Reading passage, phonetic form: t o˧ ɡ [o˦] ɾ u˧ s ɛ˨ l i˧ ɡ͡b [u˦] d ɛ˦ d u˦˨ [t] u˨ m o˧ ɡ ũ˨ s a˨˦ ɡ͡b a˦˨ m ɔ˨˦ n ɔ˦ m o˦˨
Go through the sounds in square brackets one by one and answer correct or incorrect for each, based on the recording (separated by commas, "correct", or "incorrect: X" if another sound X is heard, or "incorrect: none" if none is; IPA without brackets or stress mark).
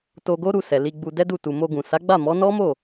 correct, incorrect: u˧, correct